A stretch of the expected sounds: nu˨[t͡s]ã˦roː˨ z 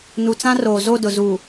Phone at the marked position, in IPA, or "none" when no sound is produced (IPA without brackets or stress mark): t͡s